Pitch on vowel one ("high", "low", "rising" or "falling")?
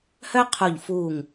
high